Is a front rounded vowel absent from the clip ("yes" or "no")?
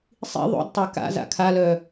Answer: no